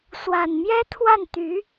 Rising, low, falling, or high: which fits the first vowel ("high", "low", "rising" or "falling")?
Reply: low